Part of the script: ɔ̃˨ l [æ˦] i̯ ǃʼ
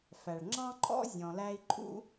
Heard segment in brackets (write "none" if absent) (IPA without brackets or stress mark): æ˦